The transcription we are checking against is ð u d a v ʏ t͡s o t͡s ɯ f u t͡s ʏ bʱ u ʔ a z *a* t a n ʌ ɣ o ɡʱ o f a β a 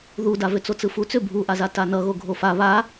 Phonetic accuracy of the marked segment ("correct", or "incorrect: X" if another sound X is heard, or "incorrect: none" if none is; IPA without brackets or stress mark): correct